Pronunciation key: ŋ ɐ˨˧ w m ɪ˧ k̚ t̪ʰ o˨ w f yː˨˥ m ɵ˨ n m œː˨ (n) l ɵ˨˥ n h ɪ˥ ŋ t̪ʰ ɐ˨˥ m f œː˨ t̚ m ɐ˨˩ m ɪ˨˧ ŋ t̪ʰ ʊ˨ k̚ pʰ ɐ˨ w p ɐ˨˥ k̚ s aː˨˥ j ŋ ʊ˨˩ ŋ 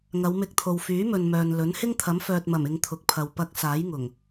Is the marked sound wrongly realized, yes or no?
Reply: no